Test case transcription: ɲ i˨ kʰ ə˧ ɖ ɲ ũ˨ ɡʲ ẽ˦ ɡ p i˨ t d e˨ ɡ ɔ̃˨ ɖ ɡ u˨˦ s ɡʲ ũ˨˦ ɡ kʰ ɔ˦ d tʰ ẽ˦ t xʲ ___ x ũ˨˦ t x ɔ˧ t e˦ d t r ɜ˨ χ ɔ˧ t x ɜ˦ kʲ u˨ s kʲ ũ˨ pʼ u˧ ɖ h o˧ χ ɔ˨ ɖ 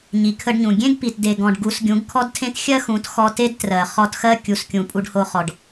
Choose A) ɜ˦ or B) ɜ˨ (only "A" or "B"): A